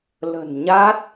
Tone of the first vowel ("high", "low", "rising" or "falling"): low